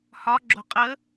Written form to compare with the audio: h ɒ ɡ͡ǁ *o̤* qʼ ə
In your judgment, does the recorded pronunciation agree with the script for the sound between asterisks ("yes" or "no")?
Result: yes